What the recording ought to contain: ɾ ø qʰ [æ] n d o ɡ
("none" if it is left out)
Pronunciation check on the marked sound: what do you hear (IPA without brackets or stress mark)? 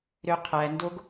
æ